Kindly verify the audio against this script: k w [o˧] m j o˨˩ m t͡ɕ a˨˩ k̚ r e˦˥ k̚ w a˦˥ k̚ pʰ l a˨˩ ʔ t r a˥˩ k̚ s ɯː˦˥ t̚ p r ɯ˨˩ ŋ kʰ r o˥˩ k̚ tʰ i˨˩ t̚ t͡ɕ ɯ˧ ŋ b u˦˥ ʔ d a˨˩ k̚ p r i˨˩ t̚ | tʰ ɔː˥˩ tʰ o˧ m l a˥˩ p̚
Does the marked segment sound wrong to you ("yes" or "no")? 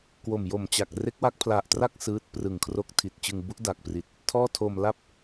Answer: yes